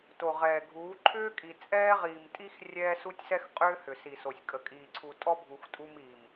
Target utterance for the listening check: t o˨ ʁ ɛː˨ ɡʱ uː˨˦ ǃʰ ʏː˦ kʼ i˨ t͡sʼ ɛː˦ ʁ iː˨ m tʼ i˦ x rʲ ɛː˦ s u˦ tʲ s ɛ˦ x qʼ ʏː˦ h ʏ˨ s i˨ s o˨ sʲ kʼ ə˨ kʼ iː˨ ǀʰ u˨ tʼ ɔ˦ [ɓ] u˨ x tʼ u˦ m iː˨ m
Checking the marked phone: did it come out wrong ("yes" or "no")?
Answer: yes